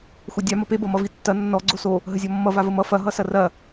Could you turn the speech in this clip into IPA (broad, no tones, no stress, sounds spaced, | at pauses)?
xʷ ʌ dʲ a m ʌ p e b ʌ m ʌ v i tː ɐ nː ɔ ɡ͡ǀ o s o | ɦ ə zʲ ɔ mː ʌ v a v ə m ʌ f ɐ ɦ ʌ s ɐ r ɐ